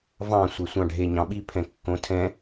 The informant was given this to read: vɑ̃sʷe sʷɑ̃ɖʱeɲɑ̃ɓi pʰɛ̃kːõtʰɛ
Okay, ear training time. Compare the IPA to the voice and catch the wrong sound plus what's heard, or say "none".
ɛ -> ɛ̃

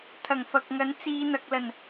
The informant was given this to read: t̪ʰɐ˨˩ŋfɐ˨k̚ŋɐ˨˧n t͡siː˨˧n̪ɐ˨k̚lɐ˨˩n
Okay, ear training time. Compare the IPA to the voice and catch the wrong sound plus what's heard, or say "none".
none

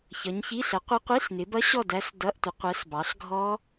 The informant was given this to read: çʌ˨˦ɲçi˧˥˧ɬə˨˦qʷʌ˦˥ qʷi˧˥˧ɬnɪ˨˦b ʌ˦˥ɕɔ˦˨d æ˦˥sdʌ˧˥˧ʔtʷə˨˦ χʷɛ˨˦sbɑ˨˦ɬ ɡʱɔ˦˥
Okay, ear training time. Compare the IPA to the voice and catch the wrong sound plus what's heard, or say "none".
χʷ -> qʷ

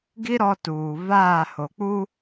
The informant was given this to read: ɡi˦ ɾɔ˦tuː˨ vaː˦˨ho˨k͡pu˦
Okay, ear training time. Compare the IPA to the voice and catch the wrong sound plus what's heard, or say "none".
none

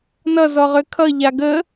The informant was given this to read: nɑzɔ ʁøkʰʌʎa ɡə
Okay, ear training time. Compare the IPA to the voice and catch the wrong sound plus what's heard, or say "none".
ɑ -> ʌ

